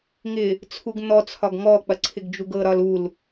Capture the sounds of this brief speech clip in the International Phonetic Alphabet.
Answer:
ŋɪ | t͡sʰuɡn̪ɔt͡sʰɒɡ ŋɔk͡pɐ ǀʰɪɡd͡ʒuɡɤɾɒl ul

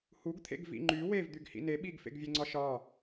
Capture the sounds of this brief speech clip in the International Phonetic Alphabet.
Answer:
huɡt̪ʰḛɡ vḭŋ͡ǃy wev d̪yɡhḭne ɓiɡfḛɡvʲeŋ͡ǀɒ ʃɒ

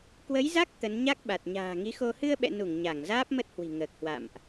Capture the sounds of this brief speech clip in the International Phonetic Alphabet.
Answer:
kwə˨˦jza˦˥k̚ t̪ə˨˦n ɲa˦˥k̚ɓa˨˩t̚ ɲa̤ː˨˩ŋi˨˦xo˧ hɨ˧ə̯ɓɛ̰˧˨nu˧˩ŋ ɲa˧˩ŋzaː˦˥p̚mə˦˥t̚hwi̤˨˩ ŋəː˨˩k̚hwa̰˧˨mʔ

